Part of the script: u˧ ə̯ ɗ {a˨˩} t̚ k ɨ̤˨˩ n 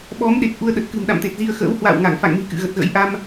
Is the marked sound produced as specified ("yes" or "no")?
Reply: no